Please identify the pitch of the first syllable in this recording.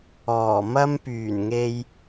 low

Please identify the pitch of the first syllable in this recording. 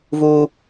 high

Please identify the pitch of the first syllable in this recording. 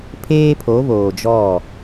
high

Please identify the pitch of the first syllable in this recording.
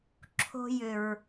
high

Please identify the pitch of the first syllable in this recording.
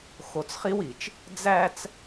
low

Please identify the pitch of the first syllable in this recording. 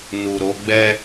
low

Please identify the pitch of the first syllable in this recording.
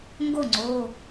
falling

